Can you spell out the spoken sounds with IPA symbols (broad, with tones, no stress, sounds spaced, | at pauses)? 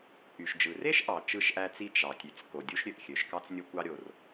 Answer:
ʔ y˩ ʃ d͡ʒ ɯ˩ r e˥ ʃ ʔ ɑ˩ t͡ʃ ɯ˥ ʃ ʔ æ˥ t͡s i˥ t͡ʃ ɑ˩ tʲ y˩ t͡s k o˩ dʲ u˥ ʃ ɾʲ ø˩ ʔ xʲ ø˩ ʃ k ɑ˥ t͡s nʲ o˥ kʷ ɑ˥ ɾʲ o˩ r